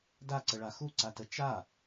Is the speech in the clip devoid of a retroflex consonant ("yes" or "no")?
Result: no